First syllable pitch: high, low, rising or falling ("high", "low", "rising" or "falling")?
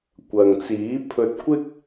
low